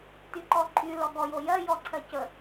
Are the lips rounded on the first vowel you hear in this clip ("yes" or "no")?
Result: yes